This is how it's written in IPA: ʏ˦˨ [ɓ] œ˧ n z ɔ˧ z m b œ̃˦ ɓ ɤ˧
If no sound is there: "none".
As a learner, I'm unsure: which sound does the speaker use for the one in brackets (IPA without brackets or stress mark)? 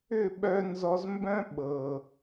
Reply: ɓ